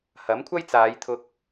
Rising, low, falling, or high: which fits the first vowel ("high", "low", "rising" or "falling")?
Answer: rising